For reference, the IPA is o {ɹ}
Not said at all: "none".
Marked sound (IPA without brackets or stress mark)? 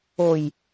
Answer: j